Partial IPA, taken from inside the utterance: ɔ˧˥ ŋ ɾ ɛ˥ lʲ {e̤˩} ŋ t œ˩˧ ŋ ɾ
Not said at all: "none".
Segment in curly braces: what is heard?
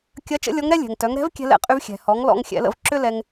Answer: ɛ̤˩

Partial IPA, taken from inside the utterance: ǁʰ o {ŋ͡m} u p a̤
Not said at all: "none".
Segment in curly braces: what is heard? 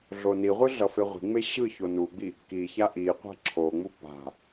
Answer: ŋ͡m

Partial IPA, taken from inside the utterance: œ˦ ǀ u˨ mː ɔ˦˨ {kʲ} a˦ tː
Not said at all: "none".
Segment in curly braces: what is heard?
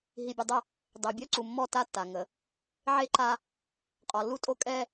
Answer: t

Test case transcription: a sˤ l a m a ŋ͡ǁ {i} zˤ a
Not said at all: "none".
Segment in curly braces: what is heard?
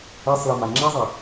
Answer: i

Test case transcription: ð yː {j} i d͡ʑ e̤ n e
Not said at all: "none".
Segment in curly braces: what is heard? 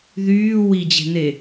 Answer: w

